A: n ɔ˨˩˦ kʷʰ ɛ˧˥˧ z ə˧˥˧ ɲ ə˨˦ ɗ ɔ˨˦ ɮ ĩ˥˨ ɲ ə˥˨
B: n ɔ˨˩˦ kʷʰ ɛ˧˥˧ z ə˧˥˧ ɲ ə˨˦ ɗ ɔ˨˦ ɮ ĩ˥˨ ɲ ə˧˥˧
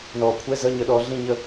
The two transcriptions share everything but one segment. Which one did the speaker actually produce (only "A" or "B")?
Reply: A